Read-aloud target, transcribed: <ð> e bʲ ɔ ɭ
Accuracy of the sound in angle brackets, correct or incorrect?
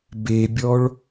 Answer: incorrect: b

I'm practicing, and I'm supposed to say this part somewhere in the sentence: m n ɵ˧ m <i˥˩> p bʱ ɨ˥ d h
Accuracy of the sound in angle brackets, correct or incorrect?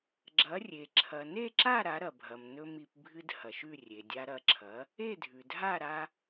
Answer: incorrect: i˧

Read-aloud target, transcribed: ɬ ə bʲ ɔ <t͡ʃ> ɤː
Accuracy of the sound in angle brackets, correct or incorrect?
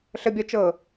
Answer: correct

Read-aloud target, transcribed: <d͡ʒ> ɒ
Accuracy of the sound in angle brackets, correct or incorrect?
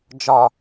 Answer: correct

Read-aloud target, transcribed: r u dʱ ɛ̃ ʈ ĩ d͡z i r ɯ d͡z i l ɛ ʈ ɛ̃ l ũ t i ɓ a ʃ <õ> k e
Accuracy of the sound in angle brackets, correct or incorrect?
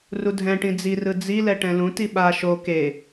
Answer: incorrect: o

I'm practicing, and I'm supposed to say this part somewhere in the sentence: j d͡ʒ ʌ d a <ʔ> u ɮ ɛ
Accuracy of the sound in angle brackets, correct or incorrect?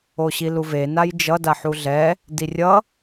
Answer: incorrect: ħ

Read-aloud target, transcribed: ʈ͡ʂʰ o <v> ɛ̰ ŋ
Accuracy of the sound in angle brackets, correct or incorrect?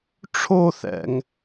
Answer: incorrect: θ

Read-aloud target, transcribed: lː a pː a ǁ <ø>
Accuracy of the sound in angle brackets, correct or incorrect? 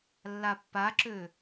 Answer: correct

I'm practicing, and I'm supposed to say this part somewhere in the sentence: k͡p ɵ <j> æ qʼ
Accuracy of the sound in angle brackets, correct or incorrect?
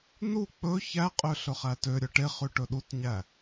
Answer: incorrect: ç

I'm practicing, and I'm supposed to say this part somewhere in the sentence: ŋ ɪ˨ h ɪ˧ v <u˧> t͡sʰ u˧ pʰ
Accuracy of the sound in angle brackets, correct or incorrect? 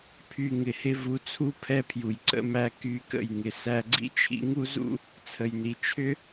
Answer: incorrect: u˨˦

